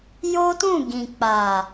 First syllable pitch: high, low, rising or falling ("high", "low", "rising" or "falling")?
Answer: high